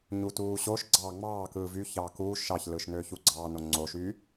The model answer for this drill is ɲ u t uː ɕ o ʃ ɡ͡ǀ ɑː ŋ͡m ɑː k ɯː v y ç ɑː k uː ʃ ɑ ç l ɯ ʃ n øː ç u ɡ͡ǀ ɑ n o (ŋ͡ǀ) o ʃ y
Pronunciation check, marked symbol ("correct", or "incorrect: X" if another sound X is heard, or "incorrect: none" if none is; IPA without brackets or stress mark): correct